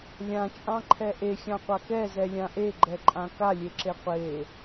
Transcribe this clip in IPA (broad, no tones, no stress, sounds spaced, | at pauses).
lʲ ã t͡ʃʼ ɑ̃ ǃʰ ɛ ʔ e xʲ ɑ̃ qʷ a k ɛ z ɛ lʲ ã ʔ e ɡ͡ǃ ɛ ǃʼ ã k a lʲ e ǁ e qʷ e